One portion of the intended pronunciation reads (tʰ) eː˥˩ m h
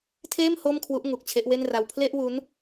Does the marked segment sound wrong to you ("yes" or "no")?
no